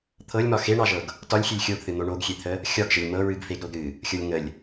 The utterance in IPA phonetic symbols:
t̪ʰ ɤ lʲ m ɒ x e ɳ ɑ ʒ ɤ ɡ | t ɒ lʲ xʲ e lʲ xʲ o ɡ θ ɨ n̪ o ɳ o ɡ xʲ e t̪ʰ ə | xʲ ɒ ɡ ʒ ə lʲ m ɤ ɹ ɨ ɡ f e ɡ ɾ o ɡ ɾ ɨ | xʲ ɤ lʲ ŋ ə lʲ

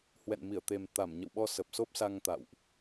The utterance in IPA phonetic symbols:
h w ɛ̰˧˨ n m i˧˩ ə̯ t̪ e˨˩ m t̪ a˧˩ m ɲ ə̰˧˨ w ɓ ɔ˧ s ə˨˩ p̚ s o˦˥ p̚ s a˧ ŋ t̪ a̰˧˨ w ʔ

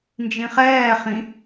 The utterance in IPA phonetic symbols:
n d͡ʒ ĩ χ ɛː χ ĩ

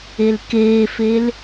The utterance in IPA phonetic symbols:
e l k eː f e l

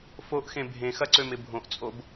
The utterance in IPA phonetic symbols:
f o ʔ x ẽ bʱ ẽ x ɐ ǀ ø m ɪ bʱ õ ʔ t͡sʼ o b

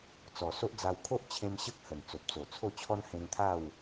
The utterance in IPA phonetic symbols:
t͡s ɔ˨˩ s o˦ ʔ d͡z a˧ w kʰ o˦ ʔ t͡ɕʰ ẽ˧ m ɕ ə˦ k̚ h ə˨˩ n t͡s o˨ p̚ t͡s o˨˩ t͡sʰ o˥˧ t͡ɕʰ ɔ˦ n h ẽ˧ ŋ t̪ʰ a˥˧ w

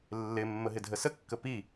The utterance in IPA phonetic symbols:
lː ɪ mː ə ɦ ɪ dʱ ə s ə kː ə p i

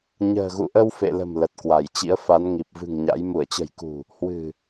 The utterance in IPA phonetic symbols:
ɲ ə̤ː˨˩ ɣ ṵ˧˨ ʔ ə˧ w f ḛ˧˨ l ə̤˨˩ m l ə˨˩ t̚ k w a˧˩ j t͡ɕ ḭ˧˥ ə̯ f a˨˦ n ŋ i˨˩ p̚ v ɨ̤˨˩ ŋ ɲ a̰˧˥ j m u˧˩ ə̯ t͡ɕ ə̤˨˩ j k ṳ˨˩ | h w ɨ̤˨˩

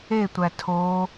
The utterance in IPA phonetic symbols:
e tʷ æ tʰ o

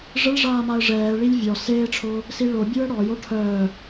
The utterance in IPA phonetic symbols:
ʐ ə ɭ ʐ aː m a ə̯ ʐ ɛː ɭ i lʲ vʲ ɔ s eː ʈ͡ʂʰ o | s i ɭ o bʲ u ə̯ ɽ ɔ j o ʈʰ œ

